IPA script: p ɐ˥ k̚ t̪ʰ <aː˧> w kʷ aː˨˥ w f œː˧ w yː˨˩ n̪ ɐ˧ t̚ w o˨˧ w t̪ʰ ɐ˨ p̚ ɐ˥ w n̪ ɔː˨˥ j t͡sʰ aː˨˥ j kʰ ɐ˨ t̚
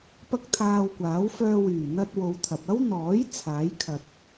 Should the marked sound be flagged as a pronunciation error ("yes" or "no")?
no